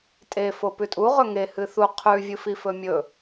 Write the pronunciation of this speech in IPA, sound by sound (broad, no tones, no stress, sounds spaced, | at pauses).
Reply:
tʼ e f o p ʉ tʼ u ʁ ɵ ŋ e h ɨ θ u qʰ ʉ vʲ ɨ f i f ɵ mʲ ɵ